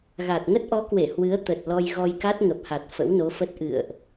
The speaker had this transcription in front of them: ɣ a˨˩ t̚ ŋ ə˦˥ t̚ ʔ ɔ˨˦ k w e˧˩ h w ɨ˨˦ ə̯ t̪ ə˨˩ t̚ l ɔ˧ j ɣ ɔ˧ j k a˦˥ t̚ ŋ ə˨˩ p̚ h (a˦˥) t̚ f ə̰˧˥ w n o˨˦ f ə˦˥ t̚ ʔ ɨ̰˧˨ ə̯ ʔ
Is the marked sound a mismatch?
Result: yes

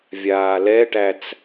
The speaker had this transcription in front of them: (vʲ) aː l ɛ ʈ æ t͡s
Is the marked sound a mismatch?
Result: no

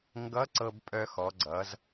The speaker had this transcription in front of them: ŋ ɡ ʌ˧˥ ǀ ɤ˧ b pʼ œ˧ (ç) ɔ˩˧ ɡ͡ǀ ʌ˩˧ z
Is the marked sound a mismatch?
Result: yes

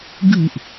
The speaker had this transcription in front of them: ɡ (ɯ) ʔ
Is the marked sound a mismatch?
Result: no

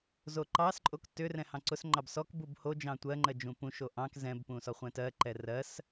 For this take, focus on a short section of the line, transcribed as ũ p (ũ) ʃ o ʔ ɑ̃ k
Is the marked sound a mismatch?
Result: no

